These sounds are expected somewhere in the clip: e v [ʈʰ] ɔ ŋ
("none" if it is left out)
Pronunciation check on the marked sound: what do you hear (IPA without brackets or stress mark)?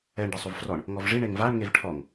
ʈʰ